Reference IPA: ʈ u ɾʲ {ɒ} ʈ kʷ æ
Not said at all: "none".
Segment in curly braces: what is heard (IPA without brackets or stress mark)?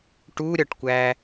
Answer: ɒ